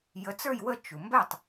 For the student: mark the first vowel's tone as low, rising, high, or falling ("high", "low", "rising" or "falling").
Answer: rising